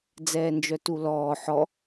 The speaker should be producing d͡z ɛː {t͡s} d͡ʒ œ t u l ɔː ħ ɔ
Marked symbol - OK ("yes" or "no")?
no